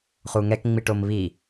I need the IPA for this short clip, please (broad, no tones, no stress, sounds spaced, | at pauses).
χ u ŋ ɛ k ŋ͡m i ʈ o m β i